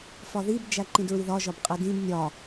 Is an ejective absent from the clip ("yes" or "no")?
no